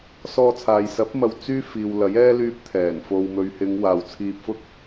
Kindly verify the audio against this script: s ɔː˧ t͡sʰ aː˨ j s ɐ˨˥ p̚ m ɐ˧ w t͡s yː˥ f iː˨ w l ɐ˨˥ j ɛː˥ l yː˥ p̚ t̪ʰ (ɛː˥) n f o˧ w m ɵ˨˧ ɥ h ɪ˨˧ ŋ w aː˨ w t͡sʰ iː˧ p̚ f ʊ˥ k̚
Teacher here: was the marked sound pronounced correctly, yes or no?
no